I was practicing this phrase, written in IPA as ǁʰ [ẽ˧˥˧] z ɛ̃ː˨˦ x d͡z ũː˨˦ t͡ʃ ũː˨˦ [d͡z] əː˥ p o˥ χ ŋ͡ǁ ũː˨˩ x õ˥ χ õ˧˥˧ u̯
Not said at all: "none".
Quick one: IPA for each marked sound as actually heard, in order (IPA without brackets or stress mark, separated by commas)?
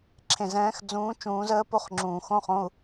ẽ˨˩, z